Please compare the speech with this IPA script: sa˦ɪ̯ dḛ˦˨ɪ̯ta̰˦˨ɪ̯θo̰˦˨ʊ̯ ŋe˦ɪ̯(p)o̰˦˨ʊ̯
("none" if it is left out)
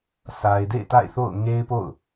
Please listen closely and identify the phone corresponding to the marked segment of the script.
p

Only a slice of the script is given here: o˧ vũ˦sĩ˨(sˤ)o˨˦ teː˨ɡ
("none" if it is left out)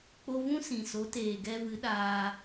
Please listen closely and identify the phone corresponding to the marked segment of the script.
s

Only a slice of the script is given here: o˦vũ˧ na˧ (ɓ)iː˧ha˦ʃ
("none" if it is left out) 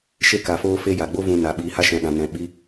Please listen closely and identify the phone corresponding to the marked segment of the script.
ɓ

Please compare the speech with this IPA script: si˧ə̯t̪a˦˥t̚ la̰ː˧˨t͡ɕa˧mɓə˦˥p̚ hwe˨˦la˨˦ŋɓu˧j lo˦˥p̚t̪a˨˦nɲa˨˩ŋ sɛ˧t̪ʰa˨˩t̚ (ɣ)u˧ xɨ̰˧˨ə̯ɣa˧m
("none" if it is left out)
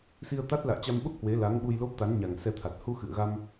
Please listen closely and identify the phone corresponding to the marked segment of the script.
h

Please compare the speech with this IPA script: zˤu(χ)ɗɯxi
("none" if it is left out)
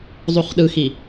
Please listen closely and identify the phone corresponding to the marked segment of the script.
χ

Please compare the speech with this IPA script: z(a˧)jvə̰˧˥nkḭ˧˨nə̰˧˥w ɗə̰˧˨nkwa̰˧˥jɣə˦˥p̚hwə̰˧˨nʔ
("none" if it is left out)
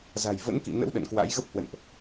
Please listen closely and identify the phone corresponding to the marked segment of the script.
a̤˨˩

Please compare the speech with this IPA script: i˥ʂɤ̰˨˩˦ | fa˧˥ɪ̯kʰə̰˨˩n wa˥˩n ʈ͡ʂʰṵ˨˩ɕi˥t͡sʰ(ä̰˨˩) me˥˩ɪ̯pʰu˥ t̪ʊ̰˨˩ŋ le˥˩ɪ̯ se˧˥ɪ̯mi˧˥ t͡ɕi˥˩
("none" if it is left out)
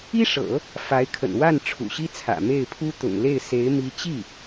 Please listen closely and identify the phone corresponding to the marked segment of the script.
ä̰˨˩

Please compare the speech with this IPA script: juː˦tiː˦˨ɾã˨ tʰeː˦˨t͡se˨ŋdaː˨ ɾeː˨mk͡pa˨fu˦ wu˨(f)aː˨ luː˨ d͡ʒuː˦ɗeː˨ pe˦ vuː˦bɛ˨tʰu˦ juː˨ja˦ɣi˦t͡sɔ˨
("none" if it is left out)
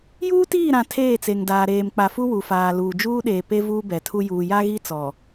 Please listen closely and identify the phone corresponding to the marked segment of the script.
f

